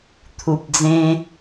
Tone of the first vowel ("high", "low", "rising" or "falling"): low